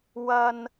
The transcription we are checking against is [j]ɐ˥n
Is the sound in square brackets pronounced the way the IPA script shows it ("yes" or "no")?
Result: no